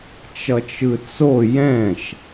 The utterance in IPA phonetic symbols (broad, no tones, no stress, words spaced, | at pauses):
t͡ʃʌt͡ʃɯt͡so jɛ̃ʃ